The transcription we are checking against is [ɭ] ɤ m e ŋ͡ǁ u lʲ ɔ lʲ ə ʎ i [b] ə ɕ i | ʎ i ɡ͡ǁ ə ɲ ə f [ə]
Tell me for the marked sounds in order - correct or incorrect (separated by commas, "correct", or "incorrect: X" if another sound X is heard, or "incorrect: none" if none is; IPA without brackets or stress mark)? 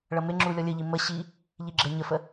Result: correct, incorrect: m, correct